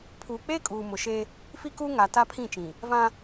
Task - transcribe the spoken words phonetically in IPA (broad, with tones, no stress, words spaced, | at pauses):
pʰuː˨k͡peː˦ kʼuː˨mʊ˨ʃe˦ | fi˦kuː˦ ŋa˨ta˦pʰĩ˦˨t͡ʃĩ˨ | vã˦